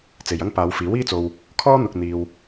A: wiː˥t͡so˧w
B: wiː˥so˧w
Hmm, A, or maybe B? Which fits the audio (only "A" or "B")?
A